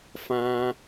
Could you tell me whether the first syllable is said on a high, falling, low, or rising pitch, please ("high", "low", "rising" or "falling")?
high